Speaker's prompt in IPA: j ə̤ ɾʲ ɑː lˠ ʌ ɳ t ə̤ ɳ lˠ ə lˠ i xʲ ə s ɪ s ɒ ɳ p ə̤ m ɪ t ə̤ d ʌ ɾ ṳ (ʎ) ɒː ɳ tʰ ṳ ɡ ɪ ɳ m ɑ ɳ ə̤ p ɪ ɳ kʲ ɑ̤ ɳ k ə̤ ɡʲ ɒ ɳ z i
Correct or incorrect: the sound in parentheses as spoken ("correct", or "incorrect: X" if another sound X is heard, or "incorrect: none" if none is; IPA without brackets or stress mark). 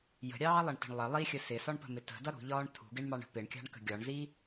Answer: correct